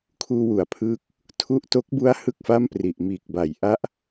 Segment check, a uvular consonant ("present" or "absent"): absent